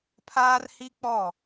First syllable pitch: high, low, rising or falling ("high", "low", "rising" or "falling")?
high